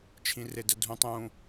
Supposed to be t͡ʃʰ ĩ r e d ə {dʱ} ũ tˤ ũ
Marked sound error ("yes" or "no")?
no